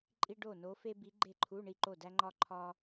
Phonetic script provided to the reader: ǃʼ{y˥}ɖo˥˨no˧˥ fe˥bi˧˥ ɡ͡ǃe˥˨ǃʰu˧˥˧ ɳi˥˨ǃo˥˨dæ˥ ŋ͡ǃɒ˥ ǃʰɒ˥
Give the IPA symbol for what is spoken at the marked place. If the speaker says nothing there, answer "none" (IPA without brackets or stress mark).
i˥